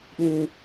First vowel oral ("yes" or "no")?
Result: no